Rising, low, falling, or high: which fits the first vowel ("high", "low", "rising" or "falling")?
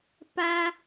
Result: high